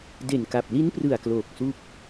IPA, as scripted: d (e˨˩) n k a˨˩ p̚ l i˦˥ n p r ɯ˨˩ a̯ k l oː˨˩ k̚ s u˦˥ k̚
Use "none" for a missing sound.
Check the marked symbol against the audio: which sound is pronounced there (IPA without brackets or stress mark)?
e˨˩